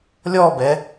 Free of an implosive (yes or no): yes